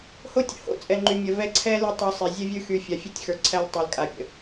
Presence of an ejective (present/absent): present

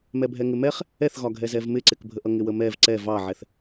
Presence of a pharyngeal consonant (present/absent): present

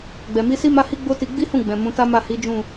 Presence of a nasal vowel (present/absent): present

